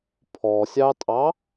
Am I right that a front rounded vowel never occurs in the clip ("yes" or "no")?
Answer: yes